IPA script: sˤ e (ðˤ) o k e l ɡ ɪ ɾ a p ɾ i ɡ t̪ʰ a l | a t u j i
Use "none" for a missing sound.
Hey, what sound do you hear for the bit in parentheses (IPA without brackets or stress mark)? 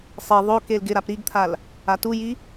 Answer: ðˤ